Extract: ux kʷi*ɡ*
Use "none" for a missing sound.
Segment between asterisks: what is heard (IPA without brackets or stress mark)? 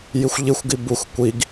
ɡ